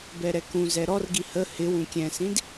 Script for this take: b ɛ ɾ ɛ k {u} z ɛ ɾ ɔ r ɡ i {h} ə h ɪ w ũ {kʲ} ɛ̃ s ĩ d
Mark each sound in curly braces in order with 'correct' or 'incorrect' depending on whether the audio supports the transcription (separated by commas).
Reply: incorrect, correct, correct